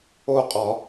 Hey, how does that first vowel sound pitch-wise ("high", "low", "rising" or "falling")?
falling